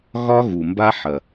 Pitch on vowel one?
high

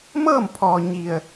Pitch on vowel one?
falling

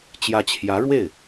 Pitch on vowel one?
rising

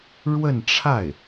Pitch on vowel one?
falling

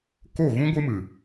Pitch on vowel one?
falling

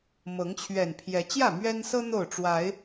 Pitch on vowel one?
rising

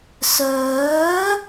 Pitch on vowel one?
rising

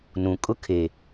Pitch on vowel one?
low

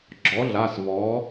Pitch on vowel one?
rising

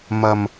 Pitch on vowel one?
low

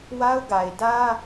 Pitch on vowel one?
high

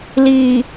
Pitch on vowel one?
low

